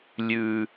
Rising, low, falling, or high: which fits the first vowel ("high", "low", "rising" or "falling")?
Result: high